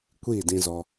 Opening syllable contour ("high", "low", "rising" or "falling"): falling